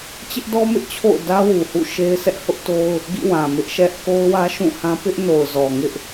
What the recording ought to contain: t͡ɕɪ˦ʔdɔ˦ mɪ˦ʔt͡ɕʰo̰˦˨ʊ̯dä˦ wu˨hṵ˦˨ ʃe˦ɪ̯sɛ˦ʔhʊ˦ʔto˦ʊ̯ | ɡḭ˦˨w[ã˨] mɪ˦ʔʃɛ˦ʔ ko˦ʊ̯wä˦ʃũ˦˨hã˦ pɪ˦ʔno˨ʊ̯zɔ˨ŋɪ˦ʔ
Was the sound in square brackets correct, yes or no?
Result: yes